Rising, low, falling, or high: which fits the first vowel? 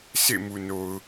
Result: falling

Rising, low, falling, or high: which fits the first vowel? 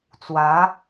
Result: rising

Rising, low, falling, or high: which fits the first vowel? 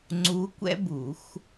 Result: rising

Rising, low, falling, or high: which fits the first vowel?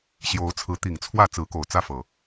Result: rising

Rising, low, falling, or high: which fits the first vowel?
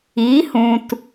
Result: rising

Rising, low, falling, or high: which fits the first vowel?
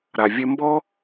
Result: low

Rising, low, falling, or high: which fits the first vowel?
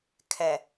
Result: low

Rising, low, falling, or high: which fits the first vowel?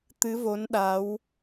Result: rising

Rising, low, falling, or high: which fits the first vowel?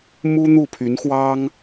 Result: high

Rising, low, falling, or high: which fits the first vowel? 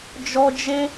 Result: high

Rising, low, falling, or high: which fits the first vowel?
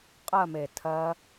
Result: falling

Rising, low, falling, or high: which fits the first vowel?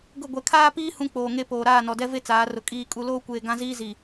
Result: falling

